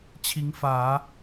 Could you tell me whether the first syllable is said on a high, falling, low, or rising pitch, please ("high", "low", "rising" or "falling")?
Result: rising